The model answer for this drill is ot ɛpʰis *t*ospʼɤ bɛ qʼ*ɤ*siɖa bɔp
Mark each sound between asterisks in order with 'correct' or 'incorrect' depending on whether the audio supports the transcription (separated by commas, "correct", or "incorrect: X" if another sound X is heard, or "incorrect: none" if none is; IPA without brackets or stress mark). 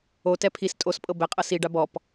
incorrect: tʼ, correct